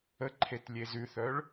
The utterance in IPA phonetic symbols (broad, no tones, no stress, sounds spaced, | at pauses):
ə ǃʰ e t lʲ e z ʉ θ œ ɭ